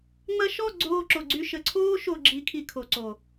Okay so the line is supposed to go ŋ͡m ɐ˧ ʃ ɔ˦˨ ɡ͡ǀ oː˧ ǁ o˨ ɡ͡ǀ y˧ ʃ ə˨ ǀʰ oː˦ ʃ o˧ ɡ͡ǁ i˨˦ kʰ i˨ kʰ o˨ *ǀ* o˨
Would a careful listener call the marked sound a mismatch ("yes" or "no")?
no